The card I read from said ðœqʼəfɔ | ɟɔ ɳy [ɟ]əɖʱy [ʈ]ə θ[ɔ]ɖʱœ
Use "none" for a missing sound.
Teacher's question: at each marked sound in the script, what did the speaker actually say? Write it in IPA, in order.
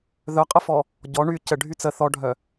c, t͡s, ɔ

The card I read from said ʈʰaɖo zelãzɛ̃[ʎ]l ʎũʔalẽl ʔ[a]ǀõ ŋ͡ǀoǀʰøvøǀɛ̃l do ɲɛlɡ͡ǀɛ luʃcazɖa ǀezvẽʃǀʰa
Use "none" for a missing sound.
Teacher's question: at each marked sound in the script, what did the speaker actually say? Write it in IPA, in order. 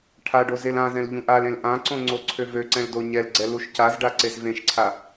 none, ã

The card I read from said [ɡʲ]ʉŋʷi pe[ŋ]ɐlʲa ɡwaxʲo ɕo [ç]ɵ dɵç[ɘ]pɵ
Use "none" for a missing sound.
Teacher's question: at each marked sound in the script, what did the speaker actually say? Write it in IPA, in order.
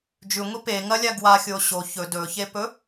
d͡ʒ, ŋ, ç, e

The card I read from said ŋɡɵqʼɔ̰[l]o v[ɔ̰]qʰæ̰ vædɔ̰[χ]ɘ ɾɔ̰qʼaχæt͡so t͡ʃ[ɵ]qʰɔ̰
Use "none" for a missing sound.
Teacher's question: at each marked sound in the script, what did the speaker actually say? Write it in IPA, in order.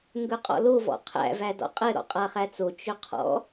l, ɔ̰, qʼ, ɵ

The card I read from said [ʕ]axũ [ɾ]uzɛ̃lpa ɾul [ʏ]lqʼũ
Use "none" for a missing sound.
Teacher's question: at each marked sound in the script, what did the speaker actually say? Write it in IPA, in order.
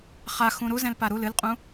χ, ɾ, ɨ

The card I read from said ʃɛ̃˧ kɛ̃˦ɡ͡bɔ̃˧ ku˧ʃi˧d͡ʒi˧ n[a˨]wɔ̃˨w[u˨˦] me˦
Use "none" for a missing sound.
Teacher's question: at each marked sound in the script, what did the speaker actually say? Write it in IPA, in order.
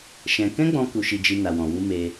a˨, u˧

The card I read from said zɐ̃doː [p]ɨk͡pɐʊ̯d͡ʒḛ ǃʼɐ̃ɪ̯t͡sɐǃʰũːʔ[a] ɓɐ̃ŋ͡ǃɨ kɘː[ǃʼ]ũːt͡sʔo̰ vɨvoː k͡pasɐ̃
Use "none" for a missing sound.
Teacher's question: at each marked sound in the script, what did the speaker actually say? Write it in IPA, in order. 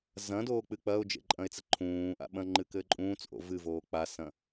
k͡p, a̰, ǃʼ

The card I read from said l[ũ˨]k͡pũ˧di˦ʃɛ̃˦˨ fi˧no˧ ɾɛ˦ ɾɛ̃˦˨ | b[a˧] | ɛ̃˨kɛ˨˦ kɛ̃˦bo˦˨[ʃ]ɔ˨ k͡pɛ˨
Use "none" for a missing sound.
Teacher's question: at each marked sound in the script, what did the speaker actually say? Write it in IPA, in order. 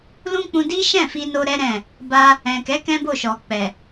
ũ˦, a˧, ʃ

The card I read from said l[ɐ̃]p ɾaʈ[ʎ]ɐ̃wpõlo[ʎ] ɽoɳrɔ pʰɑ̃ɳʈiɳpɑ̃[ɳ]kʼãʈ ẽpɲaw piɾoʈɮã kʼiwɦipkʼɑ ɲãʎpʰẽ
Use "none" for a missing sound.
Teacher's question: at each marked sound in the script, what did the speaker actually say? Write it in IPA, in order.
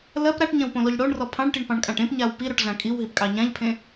ɐ, ɲ, ʎ, ɳ

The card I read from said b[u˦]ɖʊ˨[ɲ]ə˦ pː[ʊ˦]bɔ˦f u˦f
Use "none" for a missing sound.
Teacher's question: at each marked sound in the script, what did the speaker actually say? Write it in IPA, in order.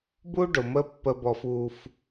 u˦, m, ə˦

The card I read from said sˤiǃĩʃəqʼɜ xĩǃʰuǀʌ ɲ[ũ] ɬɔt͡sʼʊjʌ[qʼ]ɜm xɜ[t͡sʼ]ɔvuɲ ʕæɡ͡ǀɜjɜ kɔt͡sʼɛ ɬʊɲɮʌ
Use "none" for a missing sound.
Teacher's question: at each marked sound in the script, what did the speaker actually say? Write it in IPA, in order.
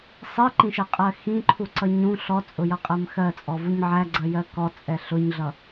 ũ, qʼ, t͡sʼ

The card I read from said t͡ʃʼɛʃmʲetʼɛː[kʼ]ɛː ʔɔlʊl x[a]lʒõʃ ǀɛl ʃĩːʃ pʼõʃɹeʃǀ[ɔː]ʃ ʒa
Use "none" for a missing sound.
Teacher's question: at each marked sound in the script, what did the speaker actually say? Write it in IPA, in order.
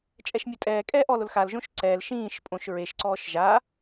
kʼ, a, ɔː

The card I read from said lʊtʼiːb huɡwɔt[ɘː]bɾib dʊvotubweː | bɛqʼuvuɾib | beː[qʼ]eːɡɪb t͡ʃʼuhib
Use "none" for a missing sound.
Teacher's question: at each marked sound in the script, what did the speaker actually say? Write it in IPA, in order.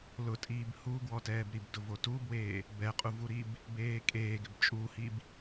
ɛː, kʼ

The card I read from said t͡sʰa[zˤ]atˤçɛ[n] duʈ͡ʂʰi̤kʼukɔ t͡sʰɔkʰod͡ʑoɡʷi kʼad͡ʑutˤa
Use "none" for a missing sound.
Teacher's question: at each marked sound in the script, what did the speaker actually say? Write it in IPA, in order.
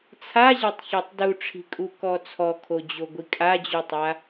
ʑ, tˤ

